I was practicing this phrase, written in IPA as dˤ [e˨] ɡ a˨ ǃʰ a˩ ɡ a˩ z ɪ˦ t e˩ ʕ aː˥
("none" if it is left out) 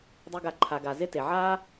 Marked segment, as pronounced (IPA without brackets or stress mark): e˨